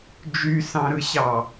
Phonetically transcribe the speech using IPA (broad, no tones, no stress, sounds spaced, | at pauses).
d͡ʒ y s ɑ̃ ɾ ɯ ɕ ɑ